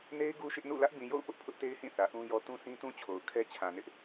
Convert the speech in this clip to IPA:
n e˦ ɪ̯ ɡ u˦ ʃ ɪ˦ ʔ n ṵ˦˨ l ä˦ ʔ b ĩ˨ j o̰˦˨ ʊ̯ p ʊ˦ ʔ pʰ ʊ˦ ʔ t e˦ ɪ̯ h ĩ˦˨ θ ä˨ ʔ ũ˦ j ɔ˦ t ũ˦ s ĩ˦ t ũ˦ t͡ɕʰ o˨ ʊ̯ kʰ ɛ˦ t͡ɕʰ ã˨ n ɪ˦ ʔ

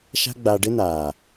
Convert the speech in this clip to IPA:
ʃ a̤˦ ɡ͡b a˧ ɖ ɪ˦ n aː˨

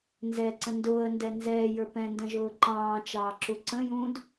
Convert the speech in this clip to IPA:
n z ɛ ǀ ə̃ n d ʊː ə̯ n d ɛ n z ɛː j ə˞ p ɛ̃ n d ə̃ ʒ ʊː ǃ ɑ̃ː t͡ʃ ɑː ǁ u ǀ ə̃ j ũː d

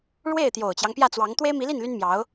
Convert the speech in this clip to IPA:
ɻ w e˥˩ ɪ̯ t̪ j o˨˩ ʊ̯ t͡ɕ j ɑ˦ ŋ p j ä˥˩ t͡s w ɑ˧˥ ŋ t̪ w e˥ ɪ̯ m i˧˥ l i˥˩ n l y˥ n m j ɑ˧˥ ʊ̯

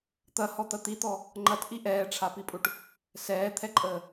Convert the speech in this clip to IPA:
t̪ ɐ h ɔ t̪ ɐ t̪ i t̪ ɔ | ŋ͡ǃ ɐ t ʔ i ʔ ɛː ʈ͡ʂʰ a p i pʼ u ʈ | s ɛː t̪ʰ ɛ ǃʼ əː

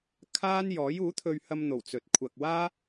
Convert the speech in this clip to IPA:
kʰ aː˥ n j ɔː˨˥ j uː˨˥ t̪ʰ ɵ˧ ɥ h ɐ˧ m n̪ o˨˩ w t͡s ɵ˨ t̚ kʷʰ ɐ˨ k̚ w aː˥

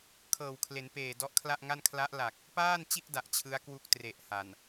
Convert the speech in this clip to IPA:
kʰ ɤː˨˩ w kʰ l e˩˦ n p eː˨˩ d ɔ˦˥ ʔ kʰ l a˥˩ ʔ ŋ a˥˩ n kʰ l a˦˥ ʔ l a˨˩ k̚ | p aː˥˩ n t͡ɕ i˥˩ ʔ d a˨˩ ʔ t͡ɕʰ ɯ˦˥ a̯ k w u˥˩ k̚ t r e˨˩ ʔ h a˨˩ n

